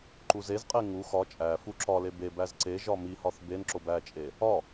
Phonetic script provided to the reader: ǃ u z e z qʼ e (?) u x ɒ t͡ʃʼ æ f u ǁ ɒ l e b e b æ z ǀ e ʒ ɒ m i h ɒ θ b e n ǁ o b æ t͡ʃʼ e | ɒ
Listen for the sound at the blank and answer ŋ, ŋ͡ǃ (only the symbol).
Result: ŋ